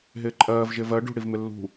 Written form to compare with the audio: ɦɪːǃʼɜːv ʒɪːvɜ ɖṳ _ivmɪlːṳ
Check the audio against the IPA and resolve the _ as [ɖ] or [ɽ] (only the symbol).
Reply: ɽ